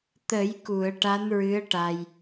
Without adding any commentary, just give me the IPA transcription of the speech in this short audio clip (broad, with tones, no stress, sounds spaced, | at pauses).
t̪ ə˨˩˦ j k u˨˩˨ ə̯ ʈ a˧˥ n ɹ ɨ˧˥ ə̯ ʈ a˧ j